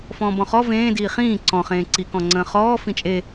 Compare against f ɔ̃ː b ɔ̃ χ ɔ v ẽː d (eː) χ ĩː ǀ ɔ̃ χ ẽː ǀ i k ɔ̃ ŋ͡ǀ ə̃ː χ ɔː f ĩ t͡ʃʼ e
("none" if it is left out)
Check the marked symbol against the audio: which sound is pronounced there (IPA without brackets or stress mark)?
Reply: iː